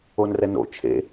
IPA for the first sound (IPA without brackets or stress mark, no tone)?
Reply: o